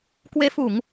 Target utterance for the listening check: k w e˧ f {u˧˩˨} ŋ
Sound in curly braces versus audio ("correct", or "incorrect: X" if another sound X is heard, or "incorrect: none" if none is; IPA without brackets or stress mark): correct